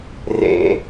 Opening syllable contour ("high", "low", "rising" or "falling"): low